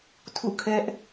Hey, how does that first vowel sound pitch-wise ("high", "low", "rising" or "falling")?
falling